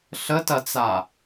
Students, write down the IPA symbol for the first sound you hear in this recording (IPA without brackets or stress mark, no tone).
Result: ɬ